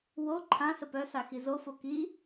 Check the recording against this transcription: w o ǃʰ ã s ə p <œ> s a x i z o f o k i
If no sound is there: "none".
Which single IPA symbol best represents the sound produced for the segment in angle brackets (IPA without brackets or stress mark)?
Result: œ